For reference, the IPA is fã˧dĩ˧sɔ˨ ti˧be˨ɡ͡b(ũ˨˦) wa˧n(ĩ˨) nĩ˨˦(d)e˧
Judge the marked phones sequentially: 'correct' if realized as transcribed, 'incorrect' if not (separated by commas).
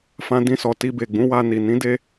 correct, incorrect, correct